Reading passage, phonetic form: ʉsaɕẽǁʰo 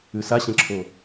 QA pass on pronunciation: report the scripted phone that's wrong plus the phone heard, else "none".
none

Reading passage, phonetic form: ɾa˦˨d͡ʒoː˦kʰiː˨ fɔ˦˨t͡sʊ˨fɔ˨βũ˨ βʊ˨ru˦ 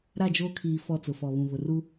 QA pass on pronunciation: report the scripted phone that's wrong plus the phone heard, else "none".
none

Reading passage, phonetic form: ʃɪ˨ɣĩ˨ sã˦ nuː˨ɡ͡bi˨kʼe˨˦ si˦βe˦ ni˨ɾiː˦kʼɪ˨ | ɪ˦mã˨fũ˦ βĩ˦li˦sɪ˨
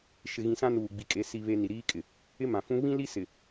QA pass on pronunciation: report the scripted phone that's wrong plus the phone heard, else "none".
none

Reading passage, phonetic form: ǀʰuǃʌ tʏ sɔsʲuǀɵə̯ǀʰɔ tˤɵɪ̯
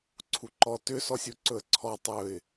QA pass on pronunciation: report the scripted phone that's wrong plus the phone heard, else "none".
ʌ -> ɔ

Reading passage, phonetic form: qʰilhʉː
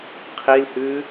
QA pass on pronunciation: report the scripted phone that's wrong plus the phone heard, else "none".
none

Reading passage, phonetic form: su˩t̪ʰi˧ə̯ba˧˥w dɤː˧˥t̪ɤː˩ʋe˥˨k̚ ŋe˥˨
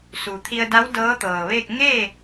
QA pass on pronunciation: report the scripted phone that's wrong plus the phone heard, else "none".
b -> d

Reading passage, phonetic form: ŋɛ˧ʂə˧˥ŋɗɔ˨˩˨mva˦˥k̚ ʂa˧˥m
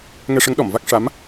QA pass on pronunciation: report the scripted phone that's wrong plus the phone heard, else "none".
none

